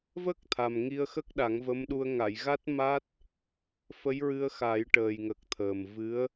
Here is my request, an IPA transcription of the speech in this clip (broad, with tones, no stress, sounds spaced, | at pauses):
v ə˦˥ k̚ t̪ʰ a˨˩ m ŋ i˧ ə̯ x ə˦˥ k̚ ɗ a˨˩˦ ŋ v ə˧˥ m ɗ u˧ ə̯ ŋ a˨˩˨ j ɣ a˦˥ t̚ m a˦˥ t̚ | f ə˧˥ j ɹ ɨ˧ ə̯ x a˨˩˦ j ʈ əː˨˩ j ŋ ə˨˩ k̚ t̪ʰ əː˨˩ m v ɨ˧˥ ə̯